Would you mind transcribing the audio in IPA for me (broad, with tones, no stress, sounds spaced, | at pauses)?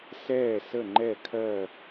s ɛː˥˩ s ə˥˩ ŋ͡ǃ ɛ˥˩ kʰ ɜ˥˩